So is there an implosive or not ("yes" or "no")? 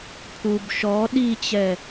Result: yes